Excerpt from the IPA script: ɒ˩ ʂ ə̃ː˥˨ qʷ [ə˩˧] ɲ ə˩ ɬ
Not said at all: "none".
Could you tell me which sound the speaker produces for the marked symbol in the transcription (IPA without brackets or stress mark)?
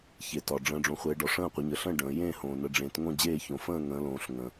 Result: ə˩˧